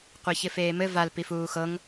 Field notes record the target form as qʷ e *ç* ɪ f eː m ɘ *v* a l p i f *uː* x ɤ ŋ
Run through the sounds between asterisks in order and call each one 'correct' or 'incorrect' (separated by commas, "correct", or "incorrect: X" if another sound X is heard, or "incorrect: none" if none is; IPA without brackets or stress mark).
correct, correct, correct